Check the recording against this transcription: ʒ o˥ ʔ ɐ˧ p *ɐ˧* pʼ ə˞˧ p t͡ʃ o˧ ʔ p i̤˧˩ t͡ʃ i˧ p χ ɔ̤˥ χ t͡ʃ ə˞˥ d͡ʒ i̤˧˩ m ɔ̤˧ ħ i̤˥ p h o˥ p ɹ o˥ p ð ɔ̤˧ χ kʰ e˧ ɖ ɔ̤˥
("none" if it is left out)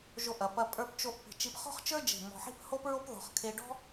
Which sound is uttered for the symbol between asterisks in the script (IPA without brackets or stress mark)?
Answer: ɐ˧